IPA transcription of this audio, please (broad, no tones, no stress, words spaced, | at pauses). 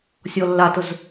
sʲɔlːatʊz